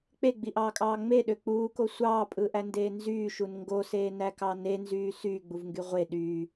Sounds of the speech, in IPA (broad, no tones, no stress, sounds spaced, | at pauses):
k͡p e ɡ͡b i ʔ ɑː kʼ ɑː ŋ͡m e ɗ ø k͡p uː k o sʷ ɑː pʼ ɯ ʔ æ n d eː n z yː ʃ u n ŋ ɡ o s eː n æ k ɑ n e n z yː s yː ɡ͡b u v ŋ ɡ y ʁʷ e ɗ yː